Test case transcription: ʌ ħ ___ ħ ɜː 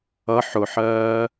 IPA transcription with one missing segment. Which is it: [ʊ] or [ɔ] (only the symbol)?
ʊ